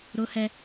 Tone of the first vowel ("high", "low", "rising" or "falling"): high